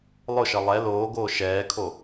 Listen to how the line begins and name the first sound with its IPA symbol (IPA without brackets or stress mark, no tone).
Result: lˠ